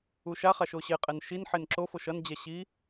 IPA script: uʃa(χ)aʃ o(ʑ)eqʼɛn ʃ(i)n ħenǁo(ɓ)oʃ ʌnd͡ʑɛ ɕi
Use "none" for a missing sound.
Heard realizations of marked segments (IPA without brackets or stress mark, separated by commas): χ, ɕ, i, f